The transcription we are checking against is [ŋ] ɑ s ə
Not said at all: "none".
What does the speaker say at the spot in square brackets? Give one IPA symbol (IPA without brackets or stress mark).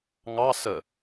ŋ